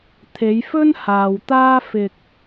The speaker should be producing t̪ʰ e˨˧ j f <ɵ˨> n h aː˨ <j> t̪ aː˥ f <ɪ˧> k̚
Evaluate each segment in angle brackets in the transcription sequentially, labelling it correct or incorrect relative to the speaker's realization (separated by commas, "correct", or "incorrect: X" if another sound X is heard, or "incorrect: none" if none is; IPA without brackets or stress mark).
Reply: incorrect: ɵ˥, incorrect: w, correct